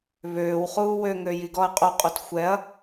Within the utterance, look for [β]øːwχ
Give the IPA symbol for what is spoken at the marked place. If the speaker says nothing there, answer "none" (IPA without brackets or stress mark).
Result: β